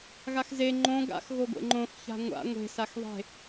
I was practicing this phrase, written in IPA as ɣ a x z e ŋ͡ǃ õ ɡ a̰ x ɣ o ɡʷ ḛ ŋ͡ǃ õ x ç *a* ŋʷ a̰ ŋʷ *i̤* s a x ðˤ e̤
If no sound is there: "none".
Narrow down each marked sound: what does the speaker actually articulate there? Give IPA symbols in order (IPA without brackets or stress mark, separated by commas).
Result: a̤, e̤